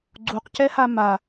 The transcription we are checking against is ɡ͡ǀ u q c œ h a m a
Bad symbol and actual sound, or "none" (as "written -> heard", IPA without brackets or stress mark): œ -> ɛ